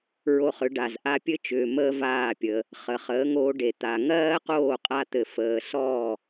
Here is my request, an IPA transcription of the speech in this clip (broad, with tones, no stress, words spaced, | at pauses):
ɹo˧χʏ˨˦ɖa˨z ʔa˧pʲɘ˦t͡ʃʏː˨ məː˦vaː˦˨pʲəː˧ | χə˨χəː˨˦ŋoː˧ɖe˨ t̪a˨ ŋɜː˦qoː˦˨qʼa˧t̪ɘ˨ fəː˨sɔː˦˨